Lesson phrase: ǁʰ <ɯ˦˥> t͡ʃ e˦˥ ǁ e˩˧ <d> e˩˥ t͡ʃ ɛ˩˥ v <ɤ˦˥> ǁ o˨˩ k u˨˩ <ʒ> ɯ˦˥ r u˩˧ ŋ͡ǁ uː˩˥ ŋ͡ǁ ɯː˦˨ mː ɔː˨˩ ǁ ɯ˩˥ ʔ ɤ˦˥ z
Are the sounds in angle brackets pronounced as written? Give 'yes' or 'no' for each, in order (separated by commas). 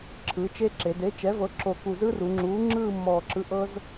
no, yes, no, no